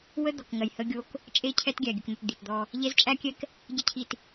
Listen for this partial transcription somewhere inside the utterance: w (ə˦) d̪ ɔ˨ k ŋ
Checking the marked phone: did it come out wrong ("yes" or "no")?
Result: no